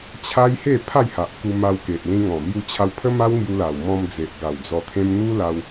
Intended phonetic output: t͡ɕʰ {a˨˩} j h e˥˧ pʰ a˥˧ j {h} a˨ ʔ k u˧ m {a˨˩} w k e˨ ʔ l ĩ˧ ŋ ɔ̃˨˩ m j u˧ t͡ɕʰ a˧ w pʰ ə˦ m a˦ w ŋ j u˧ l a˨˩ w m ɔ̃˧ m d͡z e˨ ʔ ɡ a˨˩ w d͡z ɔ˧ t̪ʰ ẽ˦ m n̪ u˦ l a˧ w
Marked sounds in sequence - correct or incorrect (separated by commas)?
incorrect, correct, incorrect